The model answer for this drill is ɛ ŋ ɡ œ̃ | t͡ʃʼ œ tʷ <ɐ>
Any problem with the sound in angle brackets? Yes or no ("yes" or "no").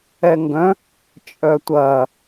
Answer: no